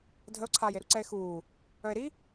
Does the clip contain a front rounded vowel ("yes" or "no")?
yes